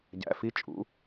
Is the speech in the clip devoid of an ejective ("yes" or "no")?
no